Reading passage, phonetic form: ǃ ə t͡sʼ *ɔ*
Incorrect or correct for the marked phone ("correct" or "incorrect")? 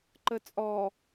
correct